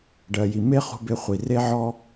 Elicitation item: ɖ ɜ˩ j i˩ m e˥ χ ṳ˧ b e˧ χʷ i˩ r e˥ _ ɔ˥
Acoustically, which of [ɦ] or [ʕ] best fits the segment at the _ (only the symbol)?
ʕ